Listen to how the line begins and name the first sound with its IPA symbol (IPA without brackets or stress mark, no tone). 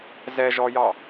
z